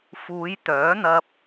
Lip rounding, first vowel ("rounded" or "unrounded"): rounded